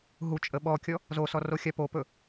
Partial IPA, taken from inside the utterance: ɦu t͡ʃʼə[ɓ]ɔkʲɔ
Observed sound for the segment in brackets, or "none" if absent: ɓ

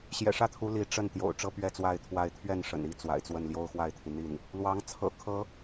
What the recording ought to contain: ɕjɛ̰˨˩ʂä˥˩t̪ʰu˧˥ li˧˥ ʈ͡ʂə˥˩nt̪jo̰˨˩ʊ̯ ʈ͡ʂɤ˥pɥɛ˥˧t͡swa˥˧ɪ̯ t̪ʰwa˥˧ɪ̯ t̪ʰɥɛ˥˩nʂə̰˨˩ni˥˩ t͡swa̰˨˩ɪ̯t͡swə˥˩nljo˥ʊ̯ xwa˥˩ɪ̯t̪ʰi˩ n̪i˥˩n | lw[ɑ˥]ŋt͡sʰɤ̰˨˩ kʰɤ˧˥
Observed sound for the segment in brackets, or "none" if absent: ɑ˧˥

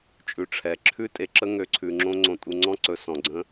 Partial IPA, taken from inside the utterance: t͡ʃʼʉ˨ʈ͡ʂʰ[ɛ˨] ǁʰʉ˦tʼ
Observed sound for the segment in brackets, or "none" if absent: ɛ˨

